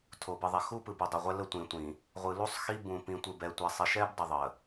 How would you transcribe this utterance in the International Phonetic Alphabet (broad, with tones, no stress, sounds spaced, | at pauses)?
tʰ o˨ b ɯ˨ ðˤ ɛ˨ x u˦ p ɯ˨ b u˨ dˤ i˨ ʁʷ ɛ˦ l ə˦ tʷ ĩ˨ tʷ ĩ˨ | ʁʷ ɯ˨ l u˦ sˤ x i˦ b ũ˨ p ĩ˨ tʷ ɯ˨ b ɛ˨ tʷ ɛ˨ sˤ i˨ ʃ ɛ˦ b dˤ ə˨ ðˤ ə˨